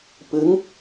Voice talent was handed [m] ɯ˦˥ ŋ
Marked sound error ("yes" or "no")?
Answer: yes